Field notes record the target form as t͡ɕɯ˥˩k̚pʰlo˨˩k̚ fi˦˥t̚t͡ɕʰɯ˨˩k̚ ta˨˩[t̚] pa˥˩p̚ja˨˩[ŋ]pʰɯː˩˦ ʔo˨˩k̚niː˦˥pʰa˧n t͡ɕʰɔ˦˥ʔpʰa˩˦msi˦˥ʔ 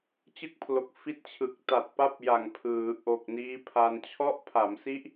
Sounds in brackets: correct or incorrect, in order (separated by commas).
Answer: correct, correct